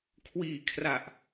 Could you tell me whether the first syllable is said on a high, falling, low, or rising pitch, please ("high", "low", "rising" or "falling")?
low